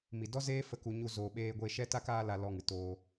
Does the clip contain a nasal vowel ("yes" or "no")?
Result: no